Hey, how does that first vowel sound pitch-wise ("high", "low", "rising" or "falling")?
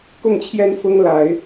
falling